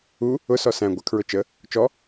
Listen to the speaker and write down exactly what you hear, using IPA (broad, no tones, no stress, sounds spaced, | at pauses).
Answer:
u | ʊ s ɔ s æ̃ ɡʷ ə kʰ ɹ ʊ t͡ʃ ə | t͡ʃ ɔ